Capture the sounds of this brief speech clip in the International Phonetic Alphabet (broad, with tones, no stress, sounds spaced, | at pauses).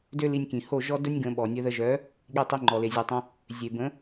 d ø˦ l i˧ nʲ k ĩ˨ h o˦˨ ʒ ɔ˦ d œ˦ nʲ ɡ ə̃˧ ɓ ɔ˨ nʲ ə˧ ð ə˧ ʒ œ˨˦ | ɠ i˧ tˤ i˧ ŋ͡ǃ ɔ˨ l e˨ zʲ u˨ tˤ õ˧ | zʲ e˨ b ə̃˨˦